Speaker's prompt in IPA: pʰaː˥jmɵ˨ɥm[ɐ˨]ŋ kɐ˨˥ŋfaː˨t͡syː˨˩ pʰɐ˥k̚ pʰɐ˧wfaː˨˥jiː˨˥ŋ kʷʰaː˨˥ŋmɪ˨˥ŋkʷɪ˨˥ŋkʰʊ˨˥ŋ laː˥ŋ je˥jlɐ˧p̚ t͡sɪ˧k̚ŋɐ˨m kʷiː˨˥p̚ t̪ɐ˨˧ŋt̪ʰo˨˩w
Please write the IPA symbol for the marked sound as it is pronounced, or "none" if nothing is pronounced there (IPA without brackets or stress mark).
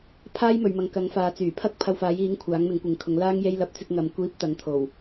ɐ˨